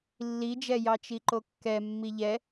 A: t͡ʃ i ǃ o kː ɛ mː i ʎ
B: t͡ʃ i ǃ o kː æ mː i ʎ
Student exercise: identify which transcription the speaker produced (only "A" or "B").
A